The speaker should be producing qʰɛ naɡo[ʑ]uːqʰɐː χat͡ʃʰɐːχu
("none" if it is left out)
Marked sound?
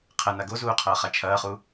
z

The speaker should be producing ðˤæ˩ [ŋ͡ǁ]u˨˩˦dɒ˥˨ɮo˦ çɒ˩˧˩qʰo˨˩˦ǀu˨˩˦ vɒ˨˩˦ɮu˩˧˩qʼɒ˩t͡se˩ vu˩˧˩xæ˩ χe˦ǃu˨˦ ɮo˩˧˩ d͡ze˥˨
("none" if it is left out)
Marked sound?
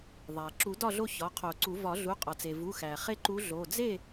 ǁ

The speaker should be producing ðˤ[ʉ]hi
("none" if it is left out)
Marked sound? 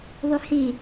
ʉ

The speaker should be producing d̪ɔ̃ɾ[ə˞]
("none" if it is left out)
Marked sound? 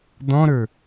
ə˞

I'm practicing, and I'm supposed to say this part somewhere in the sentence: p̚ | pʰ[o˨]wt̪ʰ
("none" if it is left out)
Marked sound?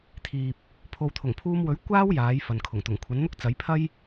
o˨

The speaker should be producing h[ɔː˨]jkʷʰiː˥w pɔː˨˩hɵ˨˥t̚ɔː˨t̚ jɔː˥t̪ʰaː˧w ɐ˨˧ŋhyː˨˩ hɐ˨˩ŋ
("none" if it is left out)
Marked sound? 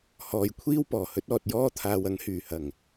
ɔː˨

